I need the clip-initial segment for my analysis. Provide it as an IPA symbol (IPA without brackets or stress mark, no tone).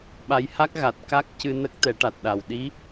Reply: ɓ